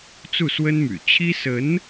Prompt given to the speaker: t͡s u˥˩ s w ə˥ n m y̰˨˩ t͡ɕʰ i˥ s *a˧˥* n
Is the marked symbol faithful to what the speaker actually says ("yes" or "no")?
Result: no